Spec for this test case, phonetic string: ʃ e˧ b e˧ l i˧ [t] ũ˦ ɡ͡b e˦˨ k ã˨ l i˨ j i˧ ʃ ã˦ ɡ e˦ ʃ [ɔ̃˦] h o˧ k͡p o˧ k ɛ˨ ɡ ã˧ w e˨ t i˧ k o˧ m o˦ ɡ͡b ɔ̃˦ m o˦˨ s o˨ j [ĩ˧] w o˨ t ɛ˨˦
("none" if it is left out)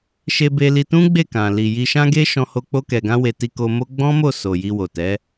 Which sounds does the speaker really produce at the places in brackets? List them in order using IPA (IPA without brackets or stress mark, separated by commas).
t, ɔ̃˧, i˧